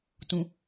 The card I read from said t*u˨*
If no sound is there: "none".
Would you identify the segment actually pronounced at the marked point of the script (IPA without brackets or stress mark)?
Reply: ũ˨